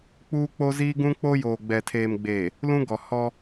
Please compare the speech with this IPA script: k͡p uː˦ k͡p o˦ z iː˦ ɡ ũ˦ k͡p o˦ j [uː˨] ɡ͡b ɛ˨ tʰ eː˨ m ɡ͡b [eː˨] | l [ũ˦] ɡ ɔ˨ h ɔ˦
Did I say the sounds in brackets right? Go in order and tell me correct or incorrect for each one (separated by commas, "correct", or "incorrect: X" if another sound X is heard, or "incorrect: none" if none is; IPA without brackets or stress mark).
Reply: incorrect: oː˨, correct, correct